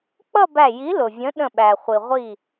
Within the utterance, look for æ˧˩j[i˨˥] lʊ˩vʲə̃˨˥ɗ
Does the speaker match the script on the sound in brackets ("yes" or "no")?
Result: yes